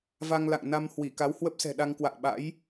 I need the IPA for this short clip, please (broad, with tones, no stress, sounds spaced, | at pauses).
v a˧ ŋ l a̰˧˨ ŋ n a˧ m h w i˧˩ k a˨˦ w h w ə˦˥ p̚ s ɛ̤˨˩ ɗ a˧ ŋ k w a̰ː˧˨ ɓ a̰˧˥ j